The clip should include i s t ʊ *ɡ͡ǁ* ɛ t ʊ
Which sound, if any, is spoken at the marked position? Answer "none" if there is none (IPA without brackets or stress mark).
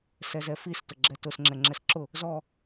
ɡ͡ǁ